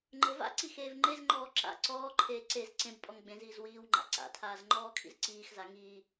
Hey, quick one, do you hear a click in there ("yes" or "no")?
yes